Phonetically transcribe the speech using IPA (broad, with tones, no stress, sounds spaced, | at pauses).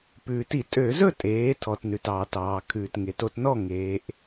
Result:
p ʉː˩ t i˧˩˧ tʼ ø˧˩˧ z ɵ˥˨ tʼ eː˩˧ tʰ ɔ˩ t n ʉ˩ t ɑː˩ t ɑː˩ kʰ ʉː˩ t ŋ e˩˧ t o˩˧ t n ɔ˥˨ ŋ eː˩˧ ʔ